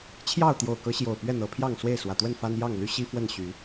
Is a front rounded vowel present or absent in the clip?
present